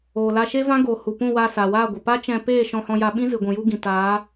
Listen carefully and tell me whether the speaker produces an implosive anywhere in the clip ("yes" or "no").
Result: yes